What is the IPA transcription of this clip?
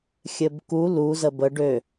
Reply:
xʲ ɘ b k u l u z ə b ə ɖ ø

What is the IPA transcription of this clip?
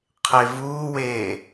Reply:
qʰ e v uː w eː

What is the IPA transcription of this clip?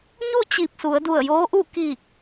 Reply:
ɲ u˥˨ t͡ɕ i˧˩ p̚ s u˩˧ ə̯ d u˧˩ ə̯ j oː˧˥ ʔ u˥˨ k i˧˩ k̚

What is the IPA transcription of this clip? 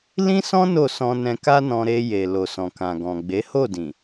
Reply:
l ĩ˦ s ɔ̃˦ n o˦˨ s ɔ̃˧ n ɛ̃˧ k a˦ n ɔ̃˧ ɾ e˧ j e˨ l o˨ s ɔ̃˨ k ã˨ ɡ ɔ̃˨ ɡ͡b e˨˦ h o˦˨ d ĩ˨

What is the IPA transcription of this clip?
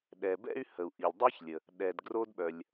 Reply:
ɗ ɛ˩ b ɛ̰˥ y̯ h ə˩ u̯ ʔ i˩ lʲ dˤ i˥ ç lʲ ə˩ | ɗ ɛ˩ d ɡ r o˥ d ɓ œ˩ lʲ

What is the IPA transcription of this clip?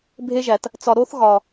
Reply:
bʱ e˦ ʒ æ˨ t | t͡s ɒ˨ ɾ o˦ θ ɣ ɒ˨

